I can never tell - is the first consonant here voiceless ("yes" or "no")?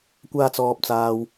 yes